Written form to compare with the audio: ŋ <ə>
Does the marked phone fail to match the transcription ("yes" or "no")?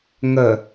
no